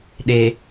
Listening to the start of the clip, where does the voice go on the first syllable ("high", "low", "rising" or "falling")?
low